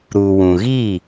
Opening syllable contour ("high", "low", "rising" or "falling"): low